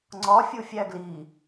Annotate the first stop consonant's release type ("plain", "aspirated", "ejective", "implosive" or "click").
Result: click